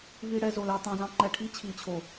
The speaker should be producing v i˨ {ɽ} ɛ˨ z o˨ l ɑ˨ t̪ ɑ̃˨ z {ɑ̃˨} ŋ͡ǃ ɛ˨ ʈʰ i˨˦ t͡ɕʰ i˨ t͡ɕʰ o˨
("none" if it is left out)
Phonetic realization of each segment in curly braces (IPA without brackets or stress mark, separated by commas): ɽ, ɑ̃˨